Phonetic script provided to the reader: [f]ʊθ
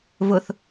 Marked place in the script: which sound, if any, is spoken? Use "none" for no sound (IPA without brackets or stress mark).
v